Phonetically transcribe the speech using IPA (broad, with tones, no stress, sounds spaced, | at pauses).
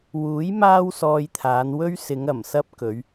w uː˨˥ j m aː˥ w s ɔː˧ j t̪ʰ aː˨˧ n w ɵ˥ ɥ s ɪ˨˧ ŋ ɐ˨˩ m s ɐ˥ p̚ k ɵ˨˧ ɥ